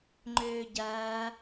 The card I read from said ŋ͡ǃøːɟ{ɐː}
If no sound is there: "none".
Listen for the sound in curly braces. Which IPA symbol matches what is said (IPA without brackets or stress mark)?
ɐː